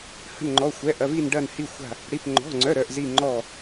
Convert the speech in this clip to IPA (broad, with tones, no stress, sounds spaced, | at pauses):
h ə̤˧˩ n ŋ͡ǃ ɔ˩˧˩ xʷ ɛ˩˧˩ ʔ ɐ˩˧˩ v i˧˩ n ɖ ɐ˧˩ n h i˧˩ xʷ a̤˧˩ | ɽ i˩˧˩ p ŋ͡ǃ ɔ̤˩˧˩ ŋ͡ǀ œ˩˧˩ ɾ œ˧˩ ʔ z i˧˩ ŋ͡ǃ ɔ˧˩